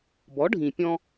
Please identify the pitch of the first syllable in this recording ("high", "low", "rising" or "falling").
rising